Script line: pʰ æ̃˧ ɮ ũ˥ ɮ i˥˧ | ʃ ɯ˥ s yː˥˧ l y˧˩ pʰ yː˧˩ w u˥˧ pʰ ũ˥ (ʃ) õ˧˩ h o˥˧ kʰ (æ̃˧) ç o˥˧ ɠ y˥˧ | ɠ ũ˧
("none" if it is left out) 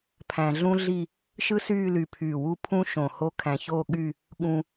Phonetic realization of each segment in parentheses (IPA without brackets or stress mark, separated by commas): ʃ, æ̃˧